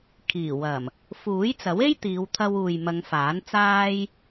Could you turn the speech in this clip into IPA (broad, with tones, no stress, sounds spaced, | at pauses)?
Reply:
kʰ iː˨˩ w ɐ˨˩ m | f uː˨˥ j t͡s ɐ˨˥ w e˥ j t̪ iː˨˧ w t̪ʰ ɐ˧ w uː˨ j m ɐ˨˧ ŋ f aː˨˥ n t͡s aː˥ j